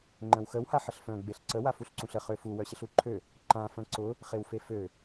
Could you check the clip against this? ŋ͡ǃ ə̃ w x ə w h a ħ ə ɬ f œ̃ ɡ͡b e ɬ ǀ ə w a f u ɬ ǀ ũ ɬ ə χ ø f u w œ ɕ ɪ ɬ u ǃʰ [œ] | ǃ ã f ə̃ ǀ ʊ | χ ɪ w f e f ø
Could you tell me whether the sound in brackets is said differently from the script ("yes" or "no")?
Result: yes